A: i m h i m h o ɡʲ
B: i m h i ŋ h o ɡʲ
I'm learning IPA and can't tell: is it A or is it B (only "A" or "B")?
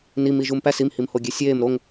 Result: A